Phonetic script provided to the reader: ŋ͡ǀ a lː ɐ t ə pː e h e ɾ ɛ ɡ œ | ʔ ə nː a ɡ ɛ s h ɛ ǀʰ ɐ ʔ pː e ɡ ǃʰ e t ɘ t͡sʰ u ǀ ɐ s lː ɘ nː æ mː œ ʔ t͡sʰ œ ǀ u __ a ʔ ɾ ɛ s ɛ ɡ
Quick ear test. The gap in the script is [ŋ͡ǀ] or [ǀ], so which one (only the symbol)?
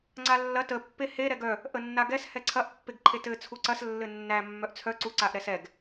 ǀ